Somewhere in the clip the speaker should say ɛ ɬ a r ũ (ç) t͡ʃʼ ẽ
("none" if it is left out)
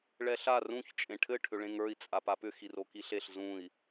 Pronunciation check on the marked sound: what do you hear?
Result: ç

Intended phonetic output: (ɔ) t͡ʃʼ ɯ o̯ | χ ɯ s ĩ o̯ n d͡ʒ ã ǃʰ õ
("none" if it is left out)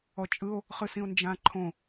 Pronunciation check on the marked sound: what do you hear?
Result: ɔ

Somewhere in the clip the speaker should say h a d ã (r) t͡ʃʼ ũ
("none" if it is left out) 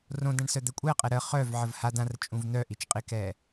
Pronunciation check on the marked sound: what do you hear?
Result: r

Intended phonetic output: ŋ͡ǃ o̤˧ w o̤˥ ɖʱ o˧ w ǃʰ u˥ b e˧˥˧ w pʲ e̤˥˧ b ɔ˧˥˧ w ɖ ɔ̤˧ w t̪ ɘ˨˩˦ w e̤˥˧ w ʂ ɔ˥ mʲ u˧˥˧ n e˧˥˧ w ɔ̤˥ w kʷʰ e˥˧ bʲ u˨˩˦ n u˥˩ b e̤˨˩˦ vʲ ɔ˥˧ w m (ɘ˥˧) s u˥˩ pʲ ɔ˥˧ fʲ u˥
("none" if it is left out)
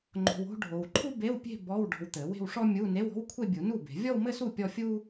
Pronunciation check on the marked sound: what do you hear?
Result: ɘ˥˧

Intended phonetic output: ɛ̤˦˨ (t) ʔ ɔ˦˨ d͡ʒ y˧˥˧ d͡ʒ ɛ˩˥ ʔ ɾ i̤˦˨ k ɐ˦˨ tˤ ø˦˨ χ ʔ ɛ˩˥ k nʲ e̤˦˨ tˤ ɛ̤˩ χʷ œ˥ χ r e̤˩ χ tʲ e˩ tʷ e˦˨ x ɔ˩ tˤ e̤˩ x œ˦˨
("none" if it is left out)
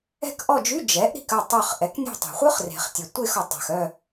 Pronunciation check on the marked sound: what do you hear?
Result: k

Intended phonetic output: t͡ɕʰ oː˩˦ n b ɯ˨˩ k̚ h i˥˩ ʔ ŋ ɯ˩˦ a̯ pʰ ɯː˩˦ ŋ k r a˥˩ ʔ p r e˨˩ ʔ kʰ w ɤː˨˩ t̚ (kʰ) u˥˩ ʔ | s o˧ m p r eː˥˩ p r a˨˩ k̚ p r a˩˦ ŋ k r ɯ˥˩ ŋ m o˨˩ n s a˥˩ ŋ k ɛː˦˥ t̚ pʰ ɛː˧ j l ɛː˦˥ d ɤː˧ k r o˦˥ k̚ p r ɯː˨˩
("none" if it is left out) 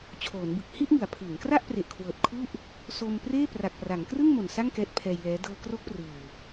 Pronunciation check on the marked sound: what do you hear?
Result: kʰ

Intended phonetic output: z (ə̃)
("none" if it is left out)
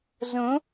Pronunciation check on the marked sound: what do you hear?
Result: ə̃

